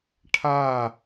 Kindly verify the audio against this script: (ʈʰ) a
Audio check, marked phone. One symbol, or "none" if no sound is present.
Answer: ʈʰ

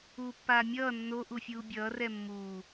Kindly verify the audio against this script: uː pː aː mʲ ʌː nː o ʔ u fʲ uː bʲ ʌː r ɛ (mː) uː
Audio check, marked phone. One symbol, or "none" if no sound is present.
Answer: mː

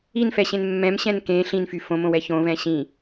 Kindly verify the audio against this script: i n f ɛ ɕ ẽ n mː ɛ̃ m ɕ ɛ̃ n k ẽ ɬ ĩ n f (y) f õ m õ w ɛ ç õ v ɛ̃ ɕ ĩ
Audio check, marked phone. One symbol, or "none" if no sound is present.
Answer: y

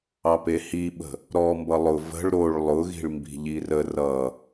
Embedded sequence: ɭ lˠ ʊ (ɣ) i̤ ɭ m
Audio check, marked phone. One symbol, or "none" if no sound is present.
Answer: ɣ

